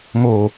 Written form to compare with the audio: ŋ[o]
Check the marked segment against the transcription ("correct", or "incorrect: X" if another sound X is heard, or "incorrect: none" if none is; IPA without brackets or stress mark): correct